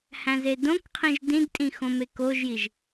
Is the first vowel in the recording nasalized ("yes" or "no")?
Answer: yes